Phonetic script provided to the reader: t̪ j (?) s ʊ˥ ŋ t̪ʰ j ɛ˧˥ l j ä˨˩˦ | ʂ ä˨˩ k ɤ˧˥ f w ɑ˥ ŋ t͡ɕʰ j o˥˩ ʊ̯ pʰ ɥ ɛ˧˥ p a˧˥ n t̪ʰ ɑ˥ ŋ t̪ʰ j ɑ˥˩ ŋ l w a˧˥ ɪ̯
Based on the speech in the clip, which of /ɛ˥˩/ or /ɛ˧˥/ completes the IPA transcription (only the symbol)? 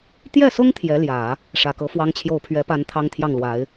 ɛ˥˩